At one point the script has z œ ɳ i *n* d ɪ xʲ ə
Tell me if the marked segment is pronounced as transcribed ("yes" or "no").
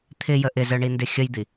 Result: yes